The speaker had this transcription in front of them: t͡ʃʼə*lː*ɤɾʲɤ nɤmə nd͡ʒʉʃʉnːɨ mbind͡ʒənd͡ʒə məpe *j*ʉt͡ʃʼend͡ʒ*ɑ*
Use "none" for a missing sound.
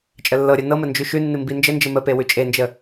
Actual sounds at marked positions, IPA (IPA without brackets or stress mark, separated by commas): lː, w, ə